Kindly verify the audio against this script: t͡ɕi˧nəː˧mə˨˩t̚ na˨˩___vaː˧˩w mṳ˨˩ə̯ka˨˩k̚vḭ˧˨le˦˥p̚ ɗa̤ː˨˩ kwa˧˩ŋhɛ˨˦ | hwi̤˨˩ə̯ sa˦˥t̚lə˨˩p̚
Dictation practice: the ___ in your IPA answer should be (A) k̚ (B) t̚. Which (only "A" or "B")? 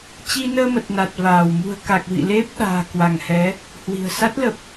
B